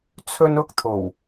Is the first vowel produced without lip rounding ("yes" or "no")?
no